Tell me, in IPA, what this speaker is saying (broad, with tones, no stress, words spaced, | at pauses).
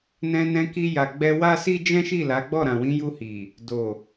nɛ̃˧nɛ̃˧ki˧ ja˨ɡ͡bɛ˧ wa˦si˦ d͡ʒɛ̃˦ʃi˦˨la˨˦ɡ͡bɔ˦˨ ɾã˨wĩ˨˦ju˧ hi˨ | do˨